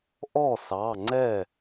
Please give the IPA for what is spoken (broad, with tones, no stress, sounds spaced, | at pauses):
ʔ ɔ˥˩ s ɑ˩˧˩ ŋ͡ǀ ɛ˥˩